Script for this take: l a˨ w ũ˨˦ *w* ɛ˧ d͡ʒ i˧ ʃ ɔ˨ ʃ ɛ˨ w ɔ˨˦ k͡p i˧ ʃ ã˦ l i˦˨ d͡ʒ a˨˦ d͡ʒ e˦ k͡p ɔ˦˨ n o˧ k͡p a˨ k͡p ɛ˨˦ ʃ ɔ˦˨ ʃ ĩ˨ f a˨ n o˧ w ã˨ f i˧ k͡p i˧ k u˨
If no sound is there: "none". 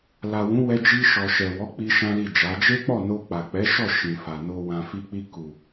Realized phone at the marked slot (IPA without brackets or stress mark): w